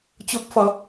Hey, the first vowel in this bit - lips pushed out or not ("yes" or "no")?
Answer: yes